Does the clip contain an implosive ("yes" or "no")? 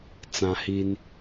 no